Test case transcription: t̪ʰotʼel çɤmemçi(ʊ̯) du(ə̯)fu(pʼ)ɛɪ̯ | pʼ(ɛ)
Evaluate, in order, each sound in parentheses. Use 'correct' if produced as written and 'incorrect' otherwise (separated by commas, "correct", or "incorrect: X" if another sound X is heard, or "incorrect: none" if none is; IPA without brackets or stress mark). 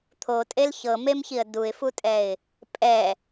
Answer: incorrect: ə̯, incorrect: ɪ̯, incorrect: tʼ, correct